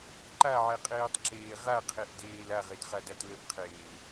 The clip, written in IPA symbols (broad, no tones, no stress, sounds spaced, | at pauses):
ǃ a ʕ ɛ qʼ eː tˤ ǁ eː ʁ a qʰ e ʔ d eː l a ʁ e d χ a d a t l ə ʔ qʰ eː l